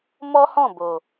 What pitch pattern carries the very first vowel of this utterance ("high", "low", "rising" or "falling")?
high